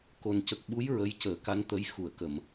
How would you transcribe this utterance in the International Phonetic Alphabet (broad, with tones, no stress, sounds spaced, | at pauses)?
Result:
k o˨˩ n c ə˨˩ k̚ ɓ u˧˥ j ɹ ə˧ j c əː˨˩˦ k a˧˥ n t̪ ə˧˥ j x u˨˩˨ ə̯ k ə˨˩˨ m